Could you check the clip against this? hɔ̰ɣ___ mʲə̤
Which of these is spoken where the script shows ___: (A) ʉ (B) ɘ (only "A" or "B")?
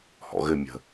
B